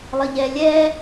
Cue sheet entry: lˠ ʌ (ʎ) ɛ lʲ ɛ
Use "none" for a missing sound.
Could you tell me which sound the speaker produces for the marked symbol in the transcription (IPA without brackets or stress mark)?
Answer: ʎ